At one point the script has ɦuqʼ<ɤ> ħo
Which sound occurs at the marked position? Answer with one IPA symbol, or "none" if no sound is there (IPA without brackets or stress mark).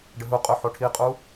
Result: ɵ